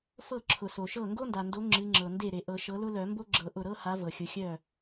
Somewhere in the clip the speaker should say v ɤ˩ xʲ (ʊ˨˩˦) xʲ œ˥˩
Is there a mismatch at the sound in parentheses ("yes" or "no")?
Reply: yes